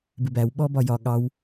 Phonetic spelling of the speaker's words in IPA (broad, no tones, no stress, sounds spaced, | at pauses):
b ɪ b æ w ɓ ɔ b ɒ j ɒ ɠ ɑ w